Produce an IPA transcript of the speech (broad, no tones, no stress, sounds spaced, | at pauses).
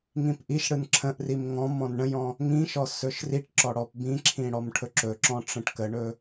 ŋ ĩ p ʔ i ʃ ɽ ɯ n ǁʰ ə̃ ʔ r i m ŋ ɔ̃ m ɔ̃ n ɳ ə̃ j ɔ̃ | ŋ ĩ ʃ ɔ s ɵ ʃ r i ʈ ǁ ɔ ɽ ɔ p b ĩ ǁʰ ĩ ɽ ɔ m ʈʰ ɵ ǁ ɵ ǁ ɔ̃ ʈ͡ʂ ə̃ ʈ k ə ɳ ɵ